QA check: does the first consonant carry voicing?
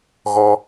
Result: yes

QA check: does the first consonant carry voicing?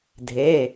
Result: yes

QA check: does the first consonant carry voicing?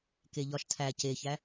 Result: no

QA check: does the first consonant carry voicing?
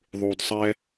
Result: yes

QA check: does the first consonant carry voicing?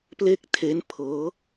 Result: no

